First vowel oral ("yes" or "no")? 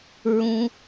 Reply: no